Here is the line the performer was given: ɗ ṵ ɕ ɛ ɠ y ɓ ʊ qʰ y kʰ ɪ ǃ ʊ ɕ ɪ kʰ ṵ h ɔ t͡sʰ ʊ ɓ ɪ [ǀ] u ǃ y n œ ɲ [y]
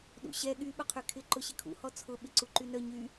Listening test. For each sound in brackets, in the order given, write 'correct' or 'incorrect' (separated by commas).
correct, correct